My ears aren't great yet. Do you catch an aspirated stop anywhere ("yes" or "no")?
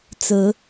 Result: no